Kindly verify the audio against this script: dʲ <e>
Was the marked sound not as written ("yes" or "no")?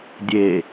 no